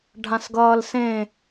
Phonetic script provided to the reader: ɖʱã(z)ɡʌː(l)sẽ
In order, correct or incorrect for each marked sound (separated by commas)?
incorrect, correct